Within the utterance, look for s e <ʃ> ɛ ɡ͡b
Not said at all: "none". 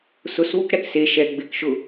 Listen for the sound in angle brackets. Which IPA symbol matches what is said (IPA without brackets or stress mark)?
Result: ʃ